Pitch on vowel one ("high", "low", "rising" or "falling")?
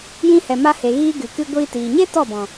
high